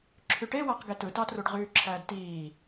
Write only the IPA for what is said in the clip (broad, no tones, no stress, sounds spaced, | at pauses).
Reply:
ǁʰ y ʈ e w æ q ɡ e t ɯ t ɑ t r u ɖ ʁ yː ǁʰ æː d t iː